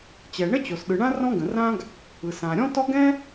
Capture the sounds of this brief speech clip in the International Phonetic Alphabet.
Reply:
t͡ɕ ɛ˩ ɳ ə˥ t͡ɕ o˩ s ɗ ɯ˩ ɳ ã˥ r ɔ̃˥ ɡ ə̃˩ r ã˥ ɡ | ɯ˩ s ã˩ ɾʲ ɔ̃˥ t ɔ˥ ɡ ɛ̃˥

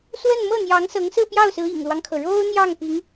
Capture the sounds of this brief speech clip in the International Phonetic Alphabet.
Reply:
s w ə˥˧ n m ɤ˥˩ n̪ j ɑ˧˥ ŋ s ɤ˧˥ ŋ s ɹ̩˥˧ p j ɑ˥˩ ʊ̯ s ɹ̩˧˥ ḭ˨˩ ŋ l w ɑ˦ ŋ kʰ ɤ˩ ɻ o˥ ʊ̯ n̪ j ɑ˥˩ ŋ p i˧˥ ŋ

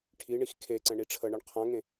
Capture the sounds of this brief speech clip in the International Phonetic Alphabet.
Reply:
ʈʰ i ɳ i x kʰ e ǀ ɛ̃ ɳ i ʈ͡ʂʰ ə ɳ ə ɳ qʰ ã ŋ ẽ

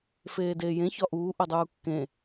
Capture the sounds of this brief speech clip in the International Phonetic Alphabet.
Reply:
f eː d eː j ẽ ç ɒ ʔ uː ʔ o dˤ uː kː ẽ

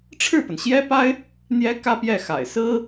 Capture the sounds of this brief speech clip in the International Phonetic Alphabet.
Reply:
ʈ͡ʂʰ ɻ̩˥˩ p ə˩ n ɕ j ɛ˥ p a˥ ɪ̯ | n̪ j ɛ˧˥ k ä˥ p j ɛ˥˩ x a̰˨˩ ɪ̯ s ɹ̩˥

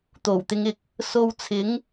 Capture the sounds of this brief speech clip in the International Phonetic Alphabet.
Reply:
t̪ o˨˩ w t̪ ɪ˨˧ ŋ ɪ˨ k̚ | s o˧ w t͡sʰ ɪ˨˥ ŋ

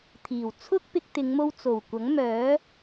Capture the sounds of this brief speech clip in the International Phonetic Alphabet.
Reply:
t̪ʰ iː˨˩ w t͡sʰ ʊ˥ k̚ p ɪ˧ k̚ t̪ ɪ˨˧ ŋ m o˧ w t͡s o˨˩ w kʷ ɐ˨˥ ŋ m œː˨˥

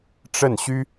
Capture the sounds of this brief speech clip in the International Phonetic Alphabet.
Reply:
ʈ͡ʂ ə˥˩ n ɕ y˥

